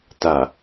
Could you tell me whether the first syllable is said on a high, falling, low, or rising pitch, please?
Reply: low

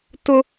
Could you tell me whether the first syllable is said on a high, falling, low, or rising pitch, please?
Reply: high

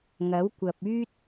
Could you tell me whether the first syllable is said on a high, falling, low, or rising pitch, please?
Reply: rising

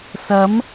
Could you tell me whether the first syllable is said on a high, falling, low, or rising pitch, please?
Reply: rising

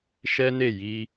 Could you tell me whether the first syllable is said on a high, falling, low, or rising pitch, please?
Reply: high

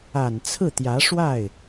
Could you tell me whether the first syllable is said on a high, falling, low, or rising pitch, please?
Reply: low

